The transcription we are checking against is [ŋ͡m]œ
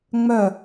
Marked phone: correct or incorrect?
correct